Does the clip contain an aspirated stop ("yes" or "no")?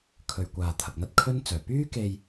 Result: yes